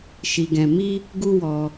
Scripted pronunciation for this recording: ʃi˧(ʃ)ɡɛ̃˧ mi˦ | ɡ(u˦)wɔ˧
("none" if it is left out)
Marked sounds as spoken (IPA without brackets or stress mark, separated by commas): none, u˦